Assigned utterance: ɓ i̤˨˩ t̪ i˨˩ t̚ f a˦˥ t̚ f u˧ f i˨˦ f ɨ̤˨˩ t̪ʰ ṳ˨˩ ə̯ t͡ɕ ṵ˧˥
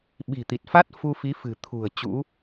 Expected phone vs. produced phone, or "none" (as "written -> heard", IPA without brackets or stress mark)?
none